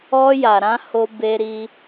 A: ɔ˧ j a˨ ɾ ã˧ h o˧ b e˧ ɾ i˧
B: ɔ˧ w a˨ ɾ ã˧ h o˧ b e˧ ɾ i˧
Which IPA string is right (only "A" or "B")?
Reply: A